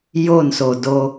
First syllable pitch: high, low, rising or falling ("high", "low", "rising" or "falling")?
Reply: falling